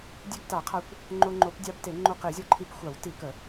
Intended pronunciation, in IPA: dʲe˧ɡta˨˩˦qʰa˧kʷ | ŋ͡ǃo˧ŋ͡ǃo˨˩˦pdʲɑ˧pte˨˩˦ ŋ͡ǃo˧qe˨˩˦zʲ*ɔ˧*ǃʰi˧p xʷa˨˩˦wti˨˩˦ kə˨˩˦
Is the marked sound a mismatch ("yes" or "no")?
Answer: no